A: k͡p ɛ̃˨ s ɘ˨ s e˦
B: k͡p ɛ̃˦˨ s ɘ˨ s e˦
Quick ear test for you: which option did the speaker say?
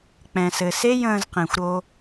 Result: A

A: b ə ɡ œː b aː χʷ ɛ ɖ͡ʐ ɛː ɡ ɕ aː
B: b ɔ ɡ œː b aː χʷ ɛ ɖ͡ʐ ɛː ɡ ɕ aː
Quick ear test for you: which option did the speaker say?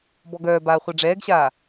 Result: B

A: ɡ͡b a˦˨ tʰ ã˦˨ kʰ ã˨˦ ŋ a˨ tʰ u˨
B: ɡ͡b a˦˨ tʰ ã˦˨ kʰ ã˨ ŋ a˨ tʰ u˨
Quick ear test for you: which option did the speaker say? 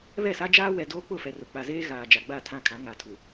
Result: A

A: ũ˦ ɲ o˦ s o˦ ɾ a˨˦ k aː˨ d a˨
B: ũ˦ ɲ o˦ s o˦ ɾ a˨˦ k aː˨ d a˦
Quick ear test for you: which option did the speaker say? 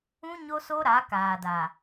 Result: A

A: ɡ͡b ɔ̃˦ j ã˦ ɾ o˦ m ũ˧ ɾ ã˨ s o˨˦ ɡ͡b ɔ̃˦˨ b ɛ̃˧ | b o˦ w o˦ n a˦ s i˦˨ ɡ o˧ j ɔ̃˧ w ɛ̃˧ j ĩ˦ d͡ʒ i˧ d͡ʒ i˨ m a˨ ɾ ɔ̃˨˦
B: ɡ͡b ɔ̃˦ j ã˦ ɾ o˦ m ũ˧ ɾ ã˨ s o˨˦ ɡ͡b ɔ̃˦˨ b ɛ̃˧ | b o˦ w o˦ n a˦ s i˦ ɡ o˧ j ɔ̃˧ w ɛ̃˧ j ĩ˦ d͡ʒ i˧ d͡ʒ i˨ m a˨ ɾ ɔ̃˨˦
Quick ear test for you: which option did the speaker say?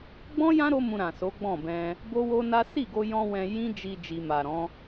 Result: A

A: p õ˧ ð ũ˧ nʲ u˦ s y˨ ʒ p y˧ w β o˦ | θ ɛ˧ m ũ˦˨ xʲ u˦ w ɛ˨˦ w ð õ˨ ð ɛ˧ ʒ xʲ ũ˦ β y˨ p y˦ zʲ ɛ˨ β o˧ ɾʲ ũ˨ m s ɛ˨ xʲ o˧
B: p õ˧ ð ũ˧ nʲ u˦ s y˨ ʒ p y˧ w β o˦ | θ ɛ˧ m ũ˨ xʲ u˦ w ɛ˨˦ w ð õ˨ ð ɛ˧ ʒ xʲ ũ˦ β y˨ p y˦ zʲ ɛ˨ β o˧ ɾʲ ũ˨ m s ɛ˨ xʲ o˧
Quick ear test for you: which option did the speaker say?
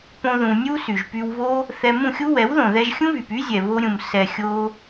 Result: A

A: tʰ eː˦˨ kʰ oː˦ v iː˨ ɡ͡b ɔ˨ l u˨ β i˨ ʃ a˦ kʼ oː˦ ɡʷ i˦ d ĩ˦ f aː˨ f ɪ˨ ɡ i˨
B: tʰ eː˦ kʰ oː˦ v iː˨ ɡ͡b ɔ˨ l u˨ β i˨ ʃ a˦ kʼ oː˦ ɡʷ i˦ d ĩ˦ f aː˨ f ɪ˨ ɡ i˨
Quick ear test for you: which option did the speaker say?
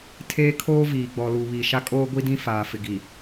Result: B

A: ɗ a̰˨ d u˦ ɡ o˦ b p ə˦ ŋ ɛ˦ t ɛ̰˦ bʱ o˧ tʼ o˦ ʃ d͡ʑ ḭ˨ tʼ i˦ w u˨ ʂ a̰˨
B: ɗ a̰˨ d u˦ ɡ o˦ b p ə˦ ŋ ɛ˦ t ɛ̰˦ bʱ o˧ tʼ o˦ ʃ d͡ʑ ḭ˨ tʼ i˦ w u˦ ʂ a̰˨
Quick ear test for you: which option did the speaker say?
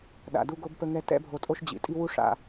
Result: B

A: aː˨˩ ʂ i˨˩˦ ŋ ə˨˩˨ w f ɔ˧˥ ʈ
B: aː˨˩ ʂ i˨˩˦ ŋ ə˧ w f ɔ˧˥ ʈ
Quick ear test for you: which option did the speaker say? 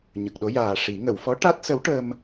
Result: A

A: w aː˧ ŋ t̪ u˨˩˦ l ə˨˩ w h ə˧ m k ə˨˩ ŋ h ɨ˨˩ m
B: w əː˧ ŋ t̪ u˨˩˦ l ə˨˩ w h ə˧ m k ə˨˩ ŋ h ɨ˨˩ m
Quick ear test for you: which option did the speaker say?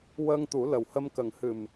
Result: B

